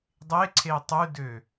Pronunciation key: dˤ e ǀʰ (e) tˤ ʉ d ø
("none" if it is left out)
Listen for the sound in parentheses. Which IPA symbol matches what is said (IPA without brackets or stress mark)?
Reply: e